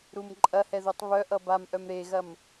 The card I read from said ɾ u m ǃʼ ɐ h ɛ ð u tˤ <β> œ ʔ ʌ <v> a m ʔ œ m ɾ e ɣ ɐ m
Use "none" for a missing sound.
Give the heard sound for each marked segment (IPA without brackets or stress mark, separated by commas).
β, b